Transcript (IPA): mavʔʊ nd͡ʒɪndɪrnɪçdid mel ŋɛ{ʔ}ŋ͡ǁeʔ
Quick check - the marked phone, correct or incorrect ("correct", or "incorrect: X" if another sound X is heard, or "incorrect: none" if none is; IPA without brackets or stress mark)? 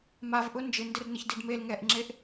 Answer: correct